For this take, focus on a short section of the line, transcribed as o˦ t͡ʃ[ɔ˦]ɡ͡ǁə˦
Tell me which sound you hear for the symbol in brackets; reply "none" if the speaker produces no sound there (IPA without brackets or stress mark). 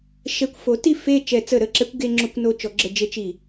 ɔ˩˥